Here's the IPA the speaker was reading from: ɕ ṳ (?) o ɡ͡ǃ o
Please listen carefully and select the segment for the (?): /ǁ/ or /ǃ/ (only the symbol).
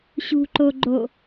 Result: ǃ